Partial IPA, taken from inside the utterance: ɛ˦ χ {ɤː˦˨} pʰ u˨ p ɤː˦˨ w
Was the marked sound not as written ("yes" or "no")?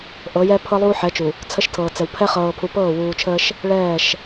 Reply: yes